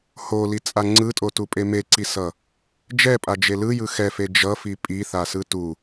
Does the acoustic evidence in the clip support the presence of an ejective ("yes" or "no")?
yes